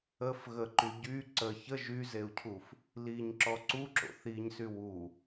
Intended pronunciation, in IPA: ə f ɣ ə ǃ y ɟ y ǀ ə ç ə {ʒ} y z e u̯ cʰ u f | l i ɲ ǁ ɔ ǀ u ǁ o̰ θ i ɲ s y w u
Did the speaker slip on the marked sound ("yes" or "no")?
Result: no